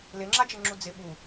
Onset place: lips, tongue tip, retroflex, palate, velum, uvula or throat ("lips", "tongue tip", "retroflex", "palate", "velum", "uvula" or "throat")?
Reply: tongue tip